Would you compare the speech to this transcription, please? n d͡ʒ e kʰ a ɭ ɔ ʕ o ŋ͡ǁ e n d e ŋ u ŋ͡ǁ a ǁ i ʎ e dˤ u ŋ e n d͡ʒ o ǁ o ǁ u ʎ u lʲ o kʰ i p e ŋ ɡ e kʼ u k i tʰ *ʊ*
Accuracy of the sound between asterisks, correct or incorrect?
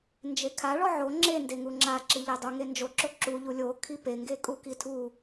incorrect: u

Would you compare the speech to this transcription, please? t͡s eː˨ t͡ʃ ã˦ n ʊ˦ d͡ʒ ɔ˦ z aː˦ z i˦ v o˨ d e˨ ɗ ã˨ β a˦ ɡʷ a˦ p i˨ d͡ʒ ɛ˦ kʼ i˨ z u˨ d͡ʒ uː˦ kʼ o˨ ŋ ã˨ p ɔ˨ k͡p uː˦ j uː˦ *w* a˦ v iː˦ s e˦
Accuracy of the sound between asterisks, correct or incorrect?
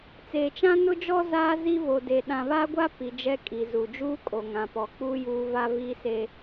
incorrect: v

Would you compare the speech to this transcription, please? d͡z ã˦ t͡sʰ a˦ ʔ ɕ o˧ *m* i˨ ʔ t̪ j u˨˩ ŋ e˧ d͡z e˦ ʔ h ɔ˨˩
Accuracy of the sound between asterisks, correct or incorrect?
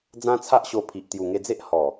incorrect: pʰ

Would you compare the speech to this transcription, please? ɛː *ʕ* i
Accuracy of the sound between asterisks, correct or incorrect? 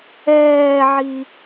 correct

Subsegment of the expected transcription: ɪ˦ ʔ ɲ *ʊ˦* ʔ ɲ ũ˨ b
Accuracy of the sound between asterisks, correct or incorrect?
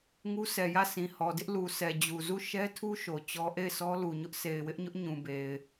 correct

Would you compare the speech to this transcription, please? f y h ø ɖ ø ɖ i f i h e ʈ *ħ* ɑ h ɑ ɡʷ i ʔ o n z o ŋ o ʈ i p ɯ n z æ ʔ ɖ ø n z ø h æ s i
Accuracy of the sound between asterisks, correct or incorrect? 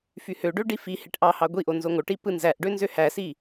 incorrect: ʔ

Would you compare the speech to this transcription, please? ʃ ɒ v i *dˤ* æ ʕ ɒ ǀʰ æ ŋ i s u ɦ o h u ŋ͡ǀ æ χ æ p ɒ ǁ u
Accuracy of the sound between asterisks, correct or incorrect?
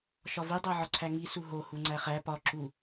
correct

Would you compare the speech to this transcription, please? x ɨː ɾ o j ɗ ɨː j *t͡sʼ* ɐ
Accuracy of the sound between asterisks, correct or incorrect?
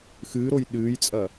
correct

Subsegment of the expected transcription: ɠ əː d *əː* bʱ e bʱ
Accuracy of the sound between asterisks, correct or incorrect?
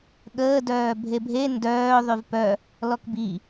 incorrect: œː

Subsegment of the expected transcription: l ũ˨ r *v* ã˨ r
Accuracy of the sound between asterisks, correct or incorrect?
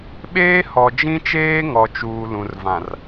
correct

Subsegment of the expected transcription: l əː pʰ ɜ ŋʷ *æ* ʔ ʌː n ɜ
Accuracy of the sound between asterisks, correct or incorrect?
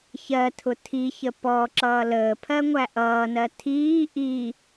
correct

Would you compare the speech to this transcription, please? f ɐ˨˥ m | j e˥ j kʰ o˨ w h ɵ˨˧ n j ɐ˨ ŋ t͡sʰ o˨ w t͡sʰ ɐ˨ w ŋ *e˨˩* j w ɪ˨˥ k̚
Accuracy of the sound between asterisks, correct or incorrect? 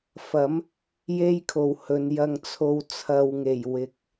correct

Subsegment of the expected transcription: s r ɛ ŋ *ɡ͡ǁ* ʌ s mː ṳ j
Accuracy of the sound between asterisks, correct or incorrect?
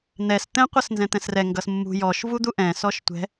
incorrect: ɡ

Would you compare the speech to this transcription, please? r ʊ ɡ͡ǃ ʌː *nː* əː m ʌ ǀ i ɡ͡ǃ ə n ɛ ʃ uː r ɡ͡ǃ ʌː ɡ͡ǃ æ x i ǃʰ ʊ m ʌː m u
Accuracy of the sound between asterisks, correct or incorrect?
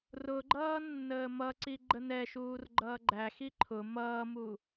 correct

